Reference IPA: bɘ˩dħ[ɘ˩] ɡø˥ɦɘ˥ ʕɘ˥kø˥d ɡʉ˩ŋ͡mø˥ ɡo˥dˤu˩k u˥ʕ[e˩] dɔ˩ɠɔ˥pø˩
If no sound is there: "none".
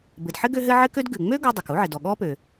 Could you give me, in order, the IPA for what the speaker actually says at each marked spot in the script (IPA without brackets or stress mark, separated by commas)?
ɘ˥, ɘ˩